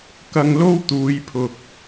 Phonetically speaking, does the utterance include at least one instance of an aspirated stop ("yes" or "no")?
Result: yes